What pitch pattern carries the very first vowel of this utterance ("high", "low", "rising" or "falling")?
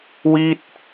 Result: falling